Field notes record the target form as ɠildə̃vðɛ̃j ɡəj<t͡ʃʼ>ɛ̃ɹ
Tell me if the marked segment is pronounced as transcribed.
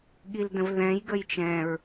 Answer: no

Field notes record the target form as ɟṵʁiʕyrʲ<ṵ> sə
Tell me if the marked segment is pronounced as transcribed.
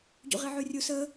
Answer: no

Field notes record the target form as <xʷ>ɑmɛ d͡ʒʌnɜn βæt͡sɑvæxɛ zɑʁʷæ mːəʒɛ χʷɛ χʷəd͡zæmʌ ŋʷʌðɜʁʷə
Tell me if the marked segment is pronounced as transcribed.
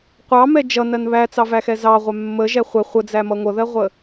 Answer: no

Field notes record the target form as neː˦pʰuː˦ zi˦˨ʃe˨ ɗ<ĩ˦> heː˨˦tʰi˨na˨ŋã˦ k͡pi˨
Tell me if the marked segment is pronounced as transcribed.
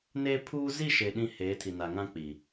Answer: yes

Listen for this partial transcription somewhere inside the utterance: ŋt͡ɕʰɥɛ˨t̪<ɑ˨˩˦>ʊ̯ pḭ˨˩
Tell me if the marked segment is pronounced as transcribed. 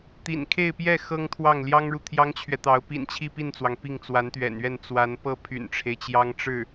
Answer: no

